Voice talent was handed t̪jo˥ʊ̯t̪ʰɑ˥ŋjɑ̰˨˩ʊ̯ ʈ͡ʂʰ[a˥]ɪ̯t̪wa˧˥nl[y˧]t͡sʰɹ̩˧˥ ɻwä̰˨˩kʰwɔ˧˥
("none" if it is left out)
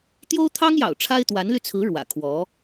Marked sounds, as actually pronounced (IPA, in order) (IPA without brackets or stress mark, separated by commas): a˥, y˧